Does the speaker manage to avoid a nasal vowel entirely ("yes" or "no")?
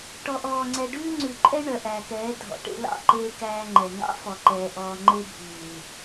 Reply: yes